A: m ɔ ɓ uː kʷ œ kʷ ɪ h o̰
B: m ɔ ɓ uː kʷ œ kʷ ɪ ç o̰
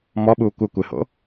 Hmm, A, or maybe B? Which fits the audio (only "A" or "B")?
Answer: A